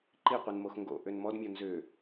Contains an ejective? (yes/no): no